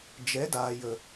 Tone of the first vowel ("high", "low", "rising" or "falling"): rising